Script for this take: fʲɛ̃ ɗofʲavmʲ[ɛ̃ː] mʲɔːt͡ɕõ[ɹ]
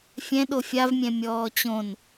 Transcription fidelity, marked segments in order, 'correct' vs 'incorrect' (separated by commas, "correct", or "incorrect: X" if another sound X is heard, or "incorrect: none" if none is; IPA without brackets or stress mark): incorrect: ɛ̃, incorrect: n